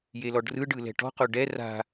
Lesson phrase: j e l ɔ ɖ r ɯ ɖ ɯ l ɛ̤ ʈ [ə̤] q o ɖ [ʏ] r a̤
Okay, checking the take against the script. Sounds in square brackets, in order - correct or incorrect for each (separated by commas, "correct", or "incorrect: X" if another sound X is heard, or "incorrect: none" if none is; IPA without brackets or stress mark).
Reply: incorrect: ɔ̤, incorrect: ɛ